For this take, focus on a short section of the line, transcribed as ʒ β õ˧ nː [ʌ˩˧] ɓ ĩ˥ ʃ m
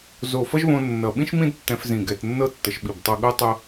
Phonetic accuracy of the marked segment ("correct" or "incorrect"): incorrect